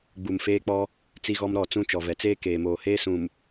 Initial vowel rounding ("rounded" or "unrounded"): rounded